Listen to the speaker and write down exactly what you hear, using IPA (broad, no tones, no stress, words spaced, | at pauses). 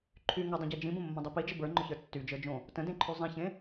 ǃʰy ŋʊdˤə̃ɟe d͡ʒĩbə̃mːə̃dˤi pid͡ʒə bə˞ŋ͡ǃʊçə˞ tːyd͡ʒə˞d͡ʒõ | tə̃dẽǃʰy zˤẽçẽ